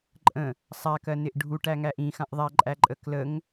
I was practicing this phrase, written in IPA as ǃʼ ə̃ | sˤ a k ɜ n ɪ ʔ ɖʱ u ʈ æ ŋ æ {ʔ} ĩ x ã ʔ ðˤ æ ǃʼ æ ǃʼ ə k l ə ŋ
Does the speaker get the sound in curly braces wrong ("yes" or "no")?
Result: no